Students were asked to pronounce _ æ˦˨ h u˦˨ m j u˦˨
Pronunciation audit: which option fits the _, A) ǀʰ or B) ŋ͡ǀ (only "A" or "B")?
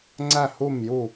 B